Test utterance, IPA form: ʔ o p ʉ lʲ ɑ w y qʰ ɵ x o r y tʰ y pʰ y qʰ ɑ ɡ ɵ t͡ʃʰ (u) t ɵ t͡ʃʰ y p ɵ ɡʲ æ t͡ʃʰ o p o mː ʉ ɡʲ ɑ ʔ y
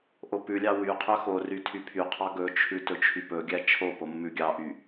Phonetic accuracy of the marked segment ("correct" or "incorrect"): incorrect